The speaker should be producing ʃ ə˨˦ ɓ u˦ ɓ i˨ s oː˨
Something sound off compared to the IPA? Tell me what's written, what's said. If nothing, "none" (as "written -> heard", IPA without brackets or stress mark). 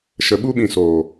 i˨ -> ĩ˨